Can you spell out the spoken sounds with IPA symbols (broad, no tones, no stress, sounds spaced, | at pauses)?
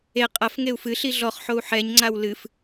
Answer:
e qʼ ɐ f ŋ e u̯ f ɨ ɬ i ɮ ɔ χ ħ o u̯ ħ ɛ ɲ ŋ͡ǀ a w l ɨ f